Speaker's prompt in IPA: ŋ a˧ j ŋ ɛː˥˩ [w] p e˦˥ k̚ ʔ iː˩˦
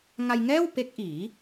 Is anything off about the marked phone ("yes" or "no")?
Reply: no